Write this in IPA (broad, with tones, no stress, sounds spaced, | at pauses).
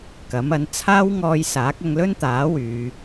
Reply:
k ɐ˨˥ m ɐ˨˥ n t͡sʰ aː˥ w ŋ ɔː˧ j s aː˨˥ k̚ ɐ˧ ŋ l ɵ˥ n t̪ aː˨˥ w yː˨˧